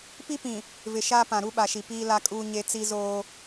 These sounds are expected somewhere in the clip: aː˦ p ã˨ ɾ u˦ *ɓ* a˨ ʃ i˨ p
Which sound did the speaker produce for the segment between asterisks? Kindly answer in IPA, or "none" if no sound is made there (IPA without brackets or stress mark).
ɓ